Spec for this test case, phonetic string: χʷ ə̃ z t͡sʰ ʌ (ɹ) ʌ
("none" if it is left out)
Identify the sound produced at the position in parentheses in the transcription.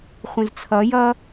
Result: j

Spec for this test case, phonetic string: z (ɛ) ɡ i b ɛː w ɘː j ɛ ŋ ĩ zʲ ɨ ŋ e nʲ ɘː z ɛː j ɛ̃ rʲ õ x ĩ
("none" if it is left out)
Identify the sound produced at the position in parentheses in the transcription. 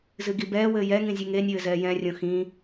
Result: ɨ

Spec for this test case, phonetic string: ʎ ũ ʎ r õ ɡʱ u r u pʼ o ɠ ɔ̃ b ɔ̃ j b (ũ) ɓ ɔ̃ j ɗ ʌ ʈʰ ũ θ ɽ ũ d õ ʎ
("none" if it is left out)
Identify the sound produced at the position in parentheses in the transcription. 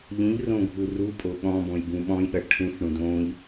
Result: ũ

